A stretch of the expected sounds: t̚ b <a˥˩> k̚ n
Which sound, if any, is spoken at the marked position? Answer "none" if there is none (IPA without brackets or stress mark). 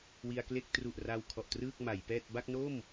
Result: a˥˩